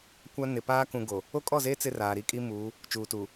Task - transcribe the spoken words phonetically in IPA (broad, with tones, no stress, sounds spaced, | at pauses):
kʷ a˦ n ɪ˨ p aː˦ k ũ˨ ɡ o˨ | o˦ kʼ ɔ˦˨ z eː˦ t͡s ɪ˦ r aː˨ ɾ i˦ kʼ i˦ m uː˨˦ | t͡ʃ uː˨ t uː˨